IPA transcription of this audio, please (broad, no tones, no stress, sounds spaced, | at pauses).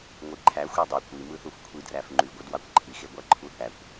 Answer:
ŋʷ i ǃʰ æ xʷ e dˤ y kʷ i m ɯ θ u f kʷʰ i d r æ f ŋ͡ǃ y ɡʷ ɯ d w ɑ kʷ ǃʰ i x e ɡʷ æ ǃʰ u θ æ kʷ